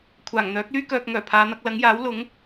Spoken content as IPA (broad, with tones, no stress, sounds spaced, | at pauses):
kʷʰ aː˨˩ ŋ n̪ œː˨˥ k̚ l yː˥ k œː˧ k̚ ŋ œː˨˩ pʰ aː˨˧ n̪ ɐ˧ k̚ l ɐ˨˥ ŋ j aː˨˥ w l ʊ˨˥ ŋ